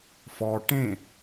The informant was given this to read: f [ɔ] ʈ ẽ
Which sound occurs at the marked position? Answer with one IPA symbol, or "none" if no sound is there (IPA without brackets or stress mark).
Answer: ɔ